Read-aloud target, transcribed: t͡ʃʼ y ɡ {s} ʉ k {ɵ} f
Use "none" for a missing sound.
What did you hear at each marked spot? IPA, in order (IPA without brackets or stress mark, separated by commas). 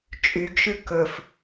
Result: ʃ, ɵ